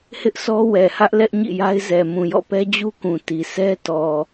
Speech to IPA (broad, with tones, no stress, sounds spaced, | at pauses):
h ɪ˦ ʔ sʰ ɔ˦ w ɛ˨ h ä˦ ʔ l ɛ˦ ʔ ɲ ḭ˦˨ j a˦ ɪ̯ z ɛ˨ m ũ˨ j ɔ̰˦˨ p ɛ˦ d͡ʑ u˦ k ũ˨ t i˨ sʰ ɛ˦ t ɔ˨